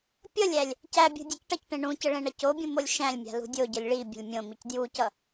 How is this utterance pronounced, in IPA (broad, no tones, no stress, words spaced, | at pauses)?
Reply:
pʲʌlʲælʲ | cæbʲṳ dʲʌcʈʌcʈẽ ɳũcə ɭẽɳʌcobʲũ molʲʃæ̃lʲmʲa̤ lṳdʲoɟʌlʲ ɭibʲə̤lʲ mʲõmic djucʌ